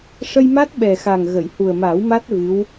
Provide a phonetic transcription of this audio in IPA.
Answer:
ʂ ə˧ j m a˦˥ t̚ ɓ ɛ˨˩ x a˨˩ ŋ ɣ ə˨˩˨ j h u˨˩ ə̯ m aː˨˩˦ w m a˦˥ t̚ v ɨ˧˥ w

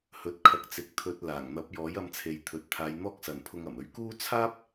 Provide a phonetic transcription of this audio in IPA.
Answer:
h ɵ˨˥ t̚ kʰ ɐ˨ k̚ t͡s ɪ˨˥ k̚ t̪ʰ ɵ˧ t̚ l aː˨˩ ŋ n̪ ɐ˨˥ p̚ j ɔː˨˥ j ɐ˧ m t͡sʰ e˨ j t̪ʰ ɵ˨ t̚ t̪ʰ aː˨˧ j n̪ ɔː˥ k̚ s ɐ˨ n pʰ ʊ˧ ŋ ɐ˨˩ m ɵ˨˥ ɥ k uː˥ t͡sʰ aː˥ p̚

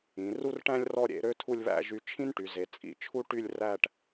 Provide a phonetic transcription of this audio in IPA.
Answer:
ĩ˩˧ r u˥ r ʈ æ̃˥ lʲ r ɔ˥˧ ɾʲ ḛ˥˧ ɾ ø˥ tʰ u˥˧ lʲ β æ̰˥˧ ʒ y˧ t͡ʃʰ ĩ˥ n ʈ y˩˧ z e˩˧ t͡sʼ ḭ˧ t͡ʃʰ u˥ ʈ y˥˧ lʲ r æ˥˧ ʈ

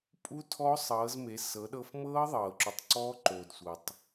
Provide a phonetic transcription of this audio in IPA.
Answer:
pʼ u˦˥ tʰ ɔ˦˥ sˤ ɤː˩˧ z m e˩˧ s ɤ˩˧ ɗ ɤ˧ f m ɤː˦˥ ðˤ ɤː˩ ǁ u˩ tˤ ǀ ɔː˦˥ ǃ oː˩ d sʷ ɤ˩ tˤ

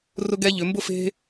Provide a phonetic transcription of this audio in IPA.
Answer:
r ʊ˥ ɡ ɛ˥ ʎ ʏ˩˧ m b ʊ˥˧ f e̤˥

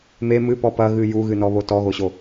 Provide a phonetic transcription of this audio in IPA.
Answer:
m e m ɨ p ɔ p ɐ ɣ ɨ j u ɣ ɨ n ɔ β o t ɔ ɣ o ɕ o

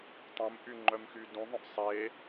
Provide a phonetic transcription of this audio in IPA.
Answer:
tˤ ũ m ʔ y ŋ͡ǃ œ m x y d ũ ðˤ œ̃ ʔ sˤ e

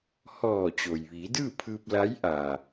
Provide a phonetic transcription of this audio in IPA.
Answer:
h ɔː˧˩ t͡ɕ o˩ j ʋ iː˩˧ d ɯː˥˨ pʰ ɯː˧ p̚ l a˧˥ j ʔ aː˩

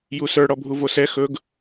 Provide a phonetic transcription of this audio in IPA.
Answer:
j u s ə˞ ɽ ɔ bʱ u v o s ɛ x ɵ ɡ

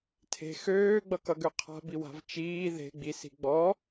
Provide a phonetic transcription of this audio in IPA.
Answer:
tʰ e̤ x øː ɡ͡b ʌ k ʌ ɡ ø qʰ a̤ b i w a̤ v t͡ʃ iː ð e̤ ɡ͡b i s i̤ ɡ͡b ɔ

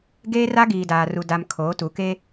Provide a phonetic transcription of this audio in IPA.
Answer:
ɡ eː˦ r a˦ ɡ iː˨ d aː˨ r u˨ d a˨ m kʰ oː˨˦ t u˨˦ k e˦

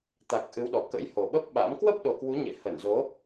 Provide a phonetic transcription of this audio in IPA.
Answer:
t̪ a˨˩ k̚ ʔ ɨ˨˦ w ɗ ɔ˨˩ k ə̰˧˥ j h o˨˩ ɓ ə˦˥ p̚ ɓ a̰˧˥ m k w ə˦˥ p̚ ɗ o˨˩ k w u˨˦ ɲ ḛ˧˨ h ə˧˩ n z o˨˦

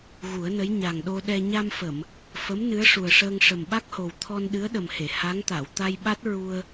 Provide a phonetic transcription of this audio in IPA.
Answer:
ɣ u˨˩˦ ə̯ n ə˧˥ j ɲ a˨˩ ŋ ɗ o˧ ɗ ɛ˧ ɲ a˧ m f ə˨˩˨ m | f ə˧˥ m n ɨ˧˥ ə̯ ʂ u˨˩ ə̯ ʂ əː˧ ŋ ʂ ə˨˩ m ɓ a˦˥ k̚ h o˨˩ w t̪ʰ ɔ˧ n ɗ ɨ˧˥ ə̯ ɗ ə˨˩ m h e˨˩˨ h a˧˥ ŋ t̪ a˨˩˨ w t̪ a˧ j ɓ a˦˥ t̚ ɹ u˧ ə̯

